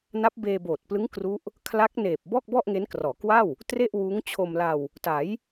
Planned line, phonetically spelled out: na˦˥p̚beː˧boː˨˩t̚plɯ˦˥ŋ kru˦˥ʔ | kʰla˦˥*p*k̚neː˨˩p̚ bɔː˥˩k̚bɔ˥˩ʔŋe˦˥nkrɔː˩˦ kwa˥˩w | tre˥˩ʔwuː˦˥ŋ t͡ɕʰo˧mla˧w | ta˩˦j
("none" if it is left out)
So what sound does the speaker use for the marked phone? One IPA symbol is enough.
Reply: none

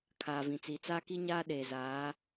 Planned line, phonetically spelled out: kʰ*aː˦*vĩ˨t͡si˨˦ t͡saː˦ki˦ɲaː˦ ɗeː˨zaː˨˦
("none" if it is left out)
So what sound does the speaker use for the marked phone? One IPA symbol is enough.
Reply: aː˨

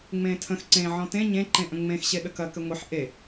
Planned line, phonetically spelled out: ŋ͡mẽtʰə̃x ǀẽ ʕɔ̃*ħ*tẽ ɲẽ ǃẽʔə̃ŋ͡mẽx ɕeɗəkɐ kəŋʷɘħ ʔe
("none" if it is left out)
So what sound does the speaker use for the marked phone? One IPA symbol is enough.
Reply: none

